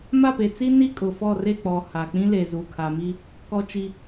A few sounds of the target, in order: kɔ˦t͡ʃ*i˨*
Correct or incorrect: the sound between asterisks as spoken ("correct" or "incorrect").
incorrect